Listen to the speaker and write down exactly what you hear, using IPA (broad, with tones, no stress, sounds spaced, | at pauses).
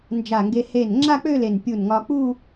n d͡ʒ a˧˩ ŋ ɡ e˧ h e˧˩ n ŋ͡ǁ a˥˧ k͡p ø˥˧ l e˧˩ n pʲ u˧˩ n ŋ ɒ˧ k͡p u˥˧